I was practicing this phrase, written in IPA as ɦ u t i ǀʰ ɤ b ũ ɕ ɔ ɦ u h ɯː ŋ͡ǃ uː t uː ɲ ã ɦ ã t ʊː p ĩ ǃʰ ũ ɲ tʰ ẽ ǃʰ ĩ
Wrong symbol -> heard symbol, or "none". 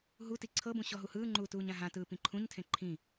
ʊː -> ɯː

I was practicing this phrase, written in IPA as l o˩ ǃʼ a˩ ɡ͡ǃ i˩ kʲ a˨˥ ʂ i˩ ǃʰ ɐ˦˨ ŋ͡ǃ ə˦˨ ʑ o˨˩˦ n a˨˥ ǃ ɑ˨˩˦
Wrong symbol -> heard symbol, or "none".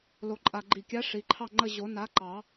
ɐ˦˨ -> ɑ˦˨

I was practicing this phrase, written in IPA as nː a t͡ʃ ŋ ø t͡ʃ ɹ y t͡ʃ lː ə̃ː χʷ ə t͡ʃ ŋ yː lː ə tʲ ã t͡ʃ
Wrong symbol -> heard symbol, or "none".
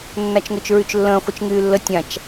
none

